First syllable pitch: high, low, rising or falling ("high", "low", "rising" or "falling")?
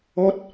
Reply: high